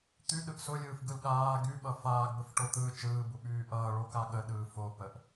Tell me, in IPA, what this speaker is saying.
t̪ y ɗ ɯ ʔ s ʊ lʲ ɯː f ɡ ɯ l ɠ aː ɡ y ɓ ʌ f aː ɡ b ə f ʈ o t̪ ɯː t͡ʃ ɯː b u ɓ yː ʔ ʌː ɭ o k a ɠ ə ɗ ɯː f o p ə ʔ

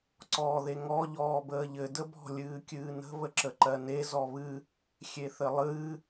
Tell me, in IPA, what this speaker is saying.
ǀ ɔː ð e ŋ ɔ ʎ ɔː b əː ʎ ɘ d ə b ɔ̤ lʲ ɨː kʲ ɨː n ə̤ β ə ǁ ə ǃ ɜ n e z ɔ β ɨ | xʲ e θ ɘ lˠ ɨː

